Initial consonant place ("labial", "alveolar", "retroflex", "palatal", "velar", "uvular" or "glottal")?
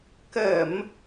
velar